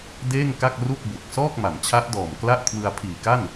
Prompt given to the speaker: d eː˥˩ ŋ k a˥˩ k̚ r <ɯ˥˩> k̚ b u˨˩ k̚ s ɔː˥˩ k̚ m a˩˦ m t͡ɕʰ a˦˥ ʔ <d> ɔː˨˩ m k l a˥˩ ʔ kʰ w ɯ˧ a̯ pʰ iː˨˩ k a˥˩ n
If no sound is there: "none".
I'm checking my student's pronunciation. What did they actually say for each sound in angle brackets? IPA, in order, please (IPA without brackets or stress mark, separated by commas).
u˥˩, d